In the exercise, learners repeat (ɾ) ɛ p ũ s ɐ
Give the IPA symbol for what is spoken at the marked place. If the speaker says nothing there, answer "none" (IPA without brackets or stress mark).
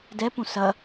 d